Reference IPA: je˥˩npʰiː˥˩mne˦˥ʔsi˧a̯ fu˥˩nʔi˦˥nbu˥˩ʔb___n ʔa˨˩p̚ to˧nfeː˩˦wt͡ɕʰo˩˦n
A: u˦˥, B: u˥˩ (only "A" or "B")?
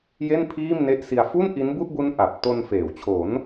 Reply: A